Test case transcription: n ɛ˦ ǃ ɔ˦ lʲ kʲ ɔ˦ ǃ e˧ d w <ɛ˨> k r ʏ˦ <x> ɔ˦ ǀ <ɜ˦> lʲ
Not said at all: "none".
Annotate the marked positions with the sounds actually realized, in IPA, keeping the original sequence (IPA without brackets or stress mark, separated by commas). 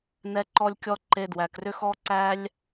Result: æ˨, x, æ˦